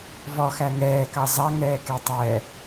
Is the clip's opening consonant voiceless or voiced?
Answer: voiced